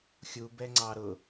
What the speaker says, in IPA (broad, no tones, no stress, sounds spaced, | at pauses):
xʲ u b ɛ ŋ͡ǀ ɑ ɾ ʊ